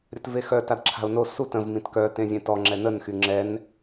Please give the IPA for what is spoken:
ɾʲ ə t v e x œ t a d ǁʰ a̤ ʊ̯ n o s u t ə̃ v m ĩ t k œ t ẽ zʲ ẽ t ɔ ŋ͡ǁ ɛ n ə n x y ŋ͡ǁ ɛ n

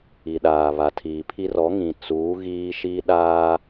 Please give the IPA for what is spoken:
i˨ ɗ aː˨ β a˨ tʰ iː˨ pʰ i˦ r ɔ˨˦ ŋ ĩ˨ t͡s uː˨˦ ɣ iː˦ ʃ i˦ ɗ aː˦

